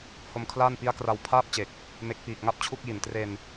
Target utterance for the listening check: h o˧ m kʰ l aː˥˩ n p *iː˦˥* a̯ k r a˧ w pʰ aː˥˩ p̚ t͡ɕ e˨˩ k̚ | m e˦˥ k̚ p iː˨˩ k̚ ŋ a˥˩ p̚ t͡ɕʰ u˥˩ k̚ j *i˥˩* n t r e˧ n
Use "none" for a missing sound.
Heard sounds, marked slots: i˦˥, i˨˩

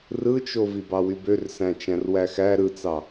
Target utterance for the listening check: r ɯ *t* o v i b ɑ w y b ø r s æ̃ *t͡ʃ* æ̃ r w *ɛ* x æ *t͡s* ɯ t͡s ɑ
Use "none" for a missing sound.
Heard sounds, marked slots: t͡ʃ, t͡ʃ, æ, ɾ

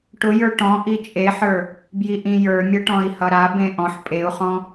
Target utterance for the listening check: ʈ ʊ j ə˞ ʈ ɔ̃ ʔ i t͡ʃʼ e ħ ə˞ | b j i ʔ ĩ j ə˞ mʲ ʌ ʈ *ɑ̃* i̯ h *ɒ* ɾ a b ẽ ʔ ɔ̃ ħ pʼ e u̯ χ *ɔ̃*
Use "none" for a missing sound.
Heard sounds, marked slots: ɔ̃, ʌ, ɔ̃

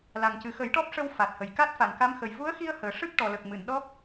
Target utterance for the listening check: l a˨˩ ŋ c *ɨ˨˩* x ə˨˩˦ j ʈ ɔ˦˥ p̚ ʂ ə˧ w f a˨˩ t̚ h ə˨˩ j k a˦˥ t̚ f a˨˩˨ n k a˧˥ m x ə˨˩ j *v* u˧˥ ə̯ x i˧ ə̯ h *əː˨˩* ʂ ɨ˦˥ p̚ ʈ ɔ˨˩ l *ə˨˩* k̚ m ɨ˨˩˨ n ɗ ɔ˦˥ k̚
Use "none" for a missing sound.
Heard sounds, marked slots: ɨ˨˩, v, əː˨˩, ə˨˩

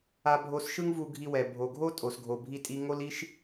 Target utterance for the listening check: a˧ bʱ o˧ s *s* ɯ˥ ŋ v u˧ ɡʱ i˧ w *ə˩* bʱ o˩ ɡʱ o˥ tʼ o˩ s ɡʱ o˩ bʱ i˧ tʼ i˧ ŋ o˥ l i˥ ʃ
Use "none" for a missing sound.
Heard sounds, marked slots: ʃ, ɛ˩

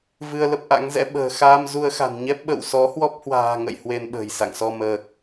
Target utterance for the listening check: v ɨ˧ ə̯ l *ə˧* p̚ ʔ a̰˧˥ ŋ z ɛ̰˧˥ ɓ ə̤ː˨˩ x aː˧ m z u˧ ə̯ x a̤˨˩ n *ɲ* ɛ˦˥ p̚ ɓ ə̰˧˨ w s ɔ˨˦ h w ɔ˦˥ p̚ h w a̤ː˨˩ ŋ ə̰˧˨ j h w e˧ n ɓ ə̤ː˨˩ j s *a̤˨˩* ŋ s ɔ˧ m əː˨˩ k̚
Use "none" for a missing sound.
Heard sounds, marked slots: ə˦˥, ɲ, a̰˧˨

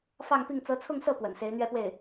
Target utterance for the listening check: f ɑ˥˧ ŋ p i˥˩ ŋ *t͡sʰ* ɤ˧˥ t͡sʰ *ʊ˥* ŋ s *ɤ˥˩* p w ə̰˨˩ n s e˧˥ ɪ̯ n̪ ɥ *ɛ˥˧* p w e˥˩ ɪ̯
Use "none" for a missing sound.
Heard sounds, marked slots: t͡s, ʊ˥˧, ɤ˥˩, ɛ˥˧

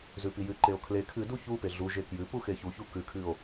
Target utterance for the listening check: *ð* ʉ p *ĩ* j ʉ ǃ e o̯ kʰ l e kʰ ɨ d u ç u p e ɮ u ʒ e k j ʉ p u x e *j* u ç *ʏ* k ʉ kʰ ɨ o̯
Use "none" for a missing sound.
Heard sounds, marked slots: z, i, ç, u

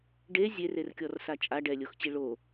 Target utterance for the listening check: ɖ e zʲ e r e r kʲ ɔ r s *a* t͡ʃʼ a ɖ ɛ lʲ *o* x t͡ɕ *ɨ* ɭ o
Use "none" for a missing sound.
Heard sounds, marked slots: a, o, i

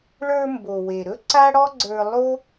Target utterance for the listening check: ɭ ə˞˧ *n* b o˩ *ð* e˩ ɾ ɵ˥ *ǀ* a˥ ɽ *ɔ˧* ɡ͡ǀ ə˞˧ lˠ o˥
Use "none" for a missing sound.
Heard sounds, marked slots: m, w, ǀ, ɔ˥

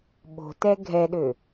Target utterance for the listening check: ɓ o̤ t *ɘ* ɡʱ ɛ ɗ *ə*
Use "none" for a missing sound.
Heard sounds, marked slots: ɛ, ø

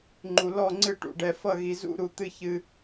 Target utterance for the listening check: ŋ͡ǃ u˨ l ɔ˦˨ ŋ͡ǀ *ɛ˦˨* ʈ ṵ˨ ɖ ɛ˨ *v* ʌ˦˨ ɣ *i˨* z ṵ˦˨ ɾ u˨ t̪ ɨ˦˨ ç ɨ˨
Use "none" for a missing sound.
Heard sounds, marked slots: ɨ˦˨, f, i˨

